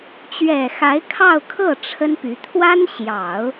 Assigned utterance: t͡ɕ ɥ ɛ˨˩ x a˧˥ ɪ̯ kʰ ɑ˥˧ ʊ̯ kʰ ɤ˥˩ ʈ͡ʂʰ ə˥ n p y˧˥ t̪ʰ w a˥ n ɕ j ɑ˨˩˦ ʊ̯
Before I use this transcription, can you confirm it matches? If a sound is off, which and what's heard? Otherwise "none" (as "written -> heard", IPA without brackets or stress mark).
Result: none